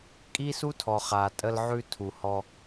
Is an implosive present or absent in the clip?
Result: absent